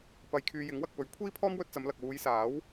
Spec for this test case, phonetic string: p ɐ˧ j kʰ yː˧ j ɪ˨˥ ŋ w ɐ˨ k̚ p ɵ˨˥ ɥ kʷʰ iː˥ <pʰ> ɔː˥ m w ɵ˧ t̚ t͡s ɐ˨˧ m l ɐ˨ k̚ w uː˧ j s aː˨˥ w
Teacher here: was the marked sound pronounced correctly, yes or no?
yes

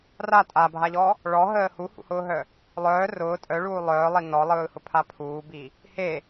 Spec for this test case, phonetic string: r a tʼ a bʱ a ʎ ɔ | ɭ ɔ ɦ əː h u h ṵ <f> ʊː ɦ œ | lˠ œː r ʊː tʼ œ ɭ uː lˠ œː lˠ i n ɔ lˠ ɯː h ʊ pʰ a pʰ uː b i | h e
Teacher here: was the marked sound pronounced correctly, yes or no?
no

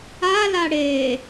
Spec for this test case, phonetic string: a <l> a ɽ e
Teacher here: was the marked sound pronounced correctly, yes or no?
yes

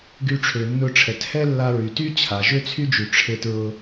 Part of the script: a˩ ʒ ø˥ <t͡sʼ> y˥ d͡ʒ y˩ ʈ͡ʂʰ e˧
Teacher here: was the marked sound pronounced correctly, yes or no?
no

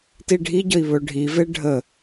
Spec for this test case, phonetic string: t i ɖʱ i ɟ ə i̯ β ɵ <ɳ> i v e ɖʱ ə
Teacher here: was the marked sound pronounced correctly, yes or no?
no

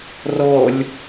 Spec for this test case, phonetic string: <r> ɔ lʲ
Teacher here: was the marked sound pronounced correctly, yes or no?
yes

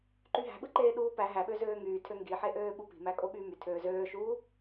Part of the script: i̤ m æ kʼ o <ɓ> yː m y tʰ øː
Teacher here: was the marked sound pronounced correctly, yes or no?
yes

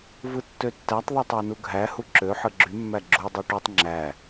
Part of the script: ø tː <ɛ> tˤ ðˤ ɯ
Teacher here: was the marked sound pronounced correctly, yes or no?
no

